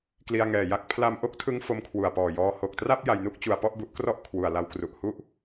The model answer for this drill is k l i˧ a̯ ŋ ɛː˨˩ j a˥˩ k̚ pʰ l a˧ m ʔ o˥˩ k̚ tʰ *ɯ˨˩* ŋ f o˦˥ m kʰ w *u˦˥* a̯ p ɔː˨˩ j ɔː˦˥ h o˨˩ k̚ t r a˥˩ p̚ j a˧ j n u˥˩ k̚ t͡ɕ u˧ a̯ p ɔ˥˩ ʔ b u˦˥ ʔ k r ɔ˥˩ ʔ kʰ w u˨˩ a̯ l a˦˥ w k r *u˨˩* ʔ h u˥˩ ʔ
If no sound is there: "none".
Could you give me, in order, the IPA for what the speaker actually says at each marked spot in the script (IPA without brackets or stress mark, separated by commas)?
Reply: ɯ˦˥, u˨˩, u˨˩